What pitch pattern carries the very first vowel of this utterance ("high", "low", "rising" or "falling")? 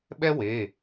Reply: high